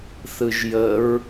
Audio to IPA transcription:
θ ɯ ʒ j ə ɹ

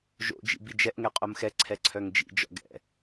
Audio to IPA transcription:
ʒ o̰ d͡ʒ ḭ b i d͡ʒ ɛ ʔ ŋ ɛ qʼ o m x ɛ ǀʰ ɛ ǀʰ œ ŋ d͡ʒ ḭ d͡ʒ ɔ̰ ɡ ɛ̰

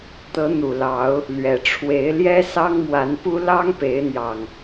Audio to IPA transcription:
t̪ ɤ˨˦ n̪ u˨˩ l ɑ˨˦ ʊ̯ | l ɥ ɛ˨˩ ʈ͡ʂʰ w e˨˦ ɪ̯ l j ɛ˦ s ɑ˦ ŋ m w a˨˦ n p u˦ l ɑ˦ ŋ p e˨˦ ɪ̯ n̪ j ɑ˨˩ ŋ

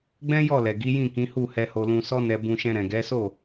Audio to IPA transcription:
ɡ͡b ɛ̃˦ j ɔ˦˨ l ɛ˨ ɡ i˨˦ j ĩ˦˨ k ĩ˨˦ h u˦˨ h ɛ˧ h o˧ l ũ˧ s ɔ˦ n ɛ˧ b ũ˧ ʃ ɛ̃˧ ɾ ɛ̃˨ ɡ ɛ˨˦ s o˦˨

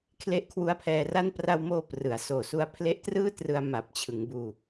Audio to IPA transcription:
kʰ l e˦˥ ʔ kʰ w u˦˥ a̯ pʰ ɛː˧ r a˥˩ n p r a˧ w m oː˧ p r ɯ˩˦ a̯ s oː˨˩ s u˦˥ a̯ pʰ l e˦˥ ʔ t r ɯː˥˩ t r ɯ˧ a̯ m a˨˩ p̚ t͡ɕʰ ɯ˩˦ ŋ b uː˧

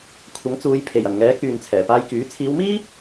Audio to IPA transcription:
kʷʰ ɐ˨˥ ŋ t͡s uː˨˧ j pʰ e˨˩ j ɐ˨˩ n ŋ ɛː˨˥ k yː˨ n t͡sʰ ɛː˨˩ p aː˧ j k yː˨˥ t͡sʰ iː˨˧ w m iː˥

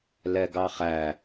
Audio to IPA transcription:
l ɛ ɡ ɑ χ æ

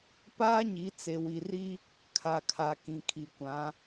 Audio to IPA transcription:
p aː˦ ɲ i˨˦ t͡s e˨ w i˨ r i˦ | kʰ a˨ kʰ a˨ k ĩ˨ kʰ i˨ kʷ ã˨˦

